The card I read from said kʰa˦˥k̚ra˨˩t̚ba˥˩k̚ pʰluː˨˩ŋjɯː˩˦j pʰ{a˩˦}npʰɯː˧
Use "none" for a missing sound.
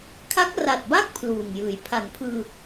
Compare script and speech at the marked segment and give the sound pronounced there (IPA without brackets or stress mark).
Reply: a˩˦